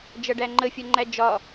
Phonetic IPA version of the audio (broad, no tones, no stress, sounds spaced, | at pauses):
d͡ʒ ʌ ɖ æ ŋ͡ǃ ə fʲ ʌ ŋ͡ǃ æ d͡ʒ ɒ